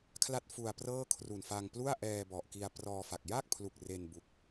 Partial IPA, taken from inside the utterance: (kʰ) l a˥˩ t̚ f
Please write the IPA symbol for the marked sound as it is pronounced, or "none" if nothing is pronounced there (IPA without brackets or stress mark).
kʰ